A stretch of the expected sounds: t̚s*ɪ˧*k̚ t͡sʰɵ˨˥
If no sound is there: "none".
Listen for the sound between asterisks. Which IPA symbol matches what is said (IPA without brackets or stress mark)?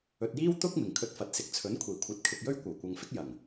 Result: ɪ˨